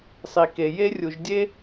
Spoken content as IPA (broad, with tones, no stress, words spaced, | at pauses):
sˤi˨ke˨ je˦rʲu˨ʒdʲe˦